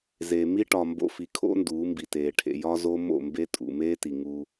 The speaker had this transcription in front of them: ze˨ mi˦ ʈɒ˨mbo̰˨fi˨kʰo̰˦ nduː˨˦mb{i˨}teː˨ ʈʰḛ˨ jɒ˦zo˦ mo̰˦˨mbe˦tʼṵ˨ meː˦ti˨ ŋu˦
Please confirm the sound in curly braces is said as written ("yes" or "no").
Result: yes